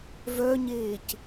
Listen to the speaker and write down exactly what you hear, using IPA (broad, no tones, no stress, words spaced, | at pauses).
vœɲeːc